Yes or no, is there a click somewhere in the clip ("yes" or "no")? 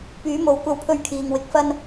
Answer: no